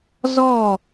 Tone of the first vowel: falling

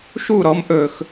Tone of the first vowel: falling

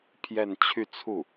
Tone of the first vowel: falling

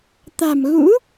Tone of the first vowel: low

